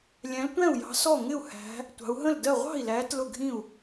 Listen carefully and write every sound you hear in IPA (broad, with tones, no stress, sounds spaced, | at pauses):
lʲ æ̃˨˦ l tʷ æ̃˥˩ u̯ j ɑ̤˨˦ s ɔ˥˩ ŋ ɪ˥˩ u̯ h æ̤˨˦ | tʷ ɑ̤˨˦ u̯ ɦ ə̃˥˩ l d ɜ˥˩ ʁʷ ɑ̤˥˩ i̯ l æ˨˦ t l ʊ˥˩ ɡʱ ĩ˥˩ u̯